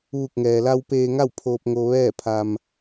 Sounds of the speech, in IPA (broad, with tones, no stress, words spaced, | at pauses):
ʋu˧˩k̚ŋɛː˩la˧w peː˧ŋa˥˨wpʰoː˧p̚ ŋo˧ʋɛː˥˨pʰa˧m